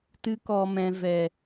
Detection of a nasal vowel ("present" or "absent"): present